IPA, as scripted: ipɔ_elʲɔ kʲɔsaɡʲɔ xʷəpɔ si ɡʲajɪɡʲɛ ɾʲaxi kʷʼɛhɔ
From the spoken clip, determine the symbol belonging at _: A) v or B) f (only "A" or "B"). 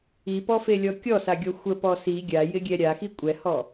B